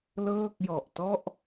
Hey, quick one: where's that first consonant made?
tongue tip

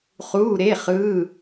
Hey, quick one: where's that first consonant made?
uvula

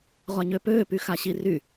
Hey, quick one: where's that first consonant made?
uvula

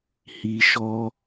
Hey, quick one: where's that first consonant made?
throat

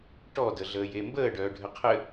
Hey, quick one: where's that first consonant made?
retroflex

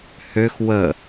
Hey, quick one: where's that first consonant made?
throat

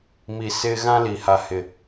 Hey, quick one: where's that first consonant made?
lips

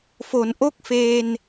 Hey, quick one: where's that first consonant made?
lips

